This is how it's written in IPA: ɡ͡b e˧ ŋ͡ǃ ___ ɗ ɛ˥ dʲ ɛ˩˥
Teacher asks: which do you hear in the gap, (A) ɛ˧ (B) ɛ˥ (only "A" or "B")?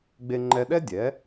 A